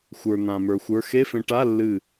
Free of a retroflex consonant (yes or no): no